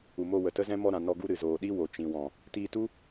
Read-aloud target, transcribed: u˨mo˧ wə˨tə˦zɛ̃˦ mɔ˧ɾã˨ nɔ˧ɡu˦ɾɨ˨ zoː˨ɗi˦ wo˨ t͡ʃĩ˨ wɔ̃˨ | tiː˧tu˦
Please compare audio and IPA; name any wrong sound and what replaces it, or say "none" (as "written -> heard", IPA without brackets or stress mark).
none